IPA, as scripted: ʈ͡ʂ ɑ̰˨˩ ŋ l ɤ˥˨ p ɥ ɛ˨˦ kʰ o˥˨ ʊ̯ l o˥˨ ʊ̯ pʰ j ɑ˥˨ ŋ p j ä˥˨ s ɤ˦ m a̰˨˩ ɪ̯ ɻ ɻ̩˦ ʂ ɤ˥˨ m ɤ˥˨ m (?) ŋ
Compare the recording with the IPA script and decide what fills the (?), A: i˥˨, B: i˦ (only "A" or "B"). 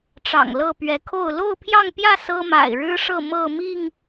A